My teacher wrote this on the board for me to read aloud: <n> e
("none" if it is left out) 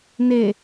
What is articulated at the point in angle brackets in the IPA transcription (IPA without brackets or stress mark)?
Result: n